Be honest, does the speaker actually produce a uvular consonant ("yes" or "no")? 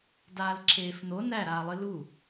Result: no